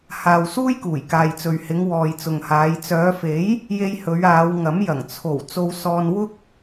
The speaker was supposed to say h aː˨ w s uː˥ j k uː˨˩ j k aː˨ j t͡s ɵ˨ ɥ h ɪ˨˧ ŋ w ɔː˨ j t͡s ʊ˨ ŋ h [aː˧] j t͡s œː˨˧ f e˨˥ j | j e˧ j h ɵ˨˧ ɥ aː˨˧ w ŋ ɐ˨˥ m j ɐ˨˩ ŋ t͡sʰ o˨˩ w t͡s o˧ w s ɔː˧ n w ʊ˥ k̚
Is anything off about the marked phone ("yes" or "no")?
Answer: yes